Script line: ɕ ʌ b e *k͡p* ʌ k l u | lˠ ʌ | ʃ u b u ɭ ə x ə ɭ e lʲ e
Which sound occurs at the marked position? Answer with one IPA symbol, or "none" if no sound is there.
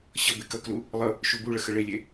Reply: k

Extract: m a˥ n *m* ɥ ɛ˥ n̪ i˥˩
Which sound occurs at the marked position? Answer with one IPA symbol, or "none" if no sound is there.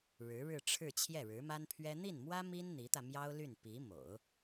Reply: pʰ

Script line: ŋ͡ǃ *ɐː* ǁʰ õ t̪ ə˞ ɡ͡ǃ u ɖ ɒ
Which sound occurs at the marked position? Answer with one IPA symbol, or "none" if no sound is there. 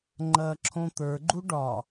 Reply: ɐː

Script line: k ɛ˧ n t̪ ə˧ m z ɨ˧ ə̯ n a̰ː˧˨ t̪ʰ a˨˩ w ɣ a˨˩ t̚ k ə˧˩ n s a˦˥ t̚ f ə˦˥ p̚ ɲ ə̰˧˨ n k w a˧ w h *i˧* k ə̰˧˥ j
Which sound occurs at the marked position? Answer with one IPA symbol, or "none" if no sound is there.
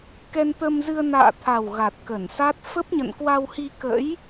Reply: i˧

